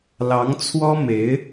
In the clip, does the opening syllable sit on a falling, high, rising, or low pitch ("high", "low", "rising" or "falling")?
rising